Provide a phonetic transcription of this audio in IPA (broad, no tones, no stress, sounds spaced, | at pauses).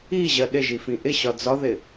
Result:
i ʑ ɜ ɗ ɪ ʒ i f ĩ ʔ ɪ ɕ ɒ d͡z ɒ ð ɪ